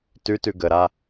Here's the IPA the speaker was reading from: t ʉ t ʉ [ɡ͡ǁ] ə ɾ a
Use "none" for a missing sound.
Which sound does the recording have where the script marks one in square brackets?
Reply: ɡ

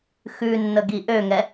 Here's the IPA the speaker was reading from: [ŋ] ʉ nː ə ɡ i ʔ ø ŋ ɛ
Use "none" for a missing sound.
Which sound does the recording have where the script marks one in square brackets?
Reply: x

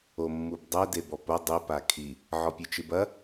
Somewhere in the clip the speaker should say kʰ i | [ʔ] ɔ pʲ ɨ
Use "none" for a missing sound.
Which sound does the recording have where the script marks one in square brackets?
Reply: ʕ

